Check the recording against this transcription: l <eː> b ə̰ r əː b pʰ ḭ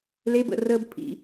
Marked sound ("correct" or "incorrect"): incorrect